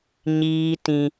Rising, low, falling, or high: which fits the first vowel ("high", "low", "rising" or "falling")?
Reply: high